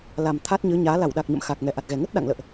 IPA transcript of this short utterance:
la˨˩mt̪ʰa˦˥t̚ɲɨ˨˦ɲaː˨˦ la˧˩wɗa˨˩k̚ɲə̰˧˨m xaː˨˩k̚ŋɛ˧˩ʔa˨˩t̚ɣɛ˨˩ ŋə˦˥t̚ ɗa̰˧˨ŋ lə̰ː˧˨ʔ

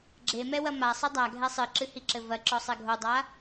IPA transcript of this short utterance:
ɡ͡ǁemɛwɐ masˤɨ dˤaɡʱɛ sˤɨǁɨhiǁɘ vɐǁɔsˤɛ ɡʱodˤa

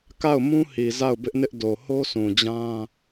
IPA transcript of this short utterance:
ka˦˨ʊ̯mũ˦hi˨ za˦˨ʊ̯bɪ˦ʔnɪ˦ʔ do˨ho˦sʰũ˨d͡ʑã˦

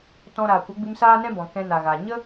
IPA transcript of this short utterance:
tɔ̃˧ ɾaː˨kʷə˨˦ɡ͡bɨ˧m saː˦nɛ̃˦bɔ̃˨ kɛ̃˧na˨ɣa˨ ɲə˦

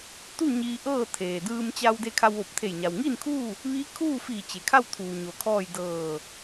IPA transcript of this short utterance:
t̪u˥˨ ɲiː˧ʔɤː˥˨ t̪ʰeː˩dɯː˧mt͡ɕa˧w de˧kʰa˧wʋo˧˩p̚t̪ʰe˧˩j ɲa˩wŋiː˥˨nkʰuː˥˨ | ʋi˧˥kʰuː˥˨fi˧˩ t͡ɕe˩kʰa˥˨wt̪ʰuː˩ ɲo˩kʰɔː˥˨j dɤː˧˩

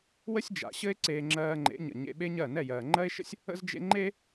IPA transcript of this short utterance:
wə˦sʲd͡ʒa̰˨ɕɘ˦e̯ ǀeː˧ŋ͡ǁɜː˧ŋ͡ǃḛ˨˦ɲə̰˨ ɲḛ˧ɓe˦ɲɜ˦˨ nɛ˦˨jɜː˨ŋ͡ǃɜ˦e̯ʃə̰˦sʲ | ə̰˦zd͡ʒḛ˦ ŋ͡ǃe˦

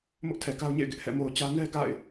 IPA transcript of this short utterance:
mʊ˦ʔtʰɛ˨ka˦ʊ̯ɲḛ˦˨ɪ̯ ɡɪ˦ʔhɛ̰˦˨ mo˨ʊ̯t͡ɕä˦ nɛ˦ ɡa̰˦˨ɪ̯

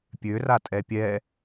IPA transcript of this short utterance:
pʲøra tʼɛpʲɛ

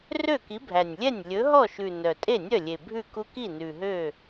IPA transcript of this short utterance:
rø˥˩ki˨˥bʱæ˨˩nʲlʲɛ˥˩nʲ lʲɵ˨˥ɦɔ˥˩ʃʉ˨˩ nœ˨˩ tʼe˥˩nʲœ˥˩lʲe˨˩ bʱʉ˥˩ku˦ki˥˩ nʉ˨˩ɦø˥˩

